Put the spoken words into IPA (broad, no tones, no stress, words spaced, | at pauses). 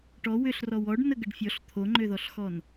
ʈɔ wʏɬ rɔwɔɖ nəɡəɖfʲɔɬ t̪ʰoŋ͡ǃøðɔɬxɔn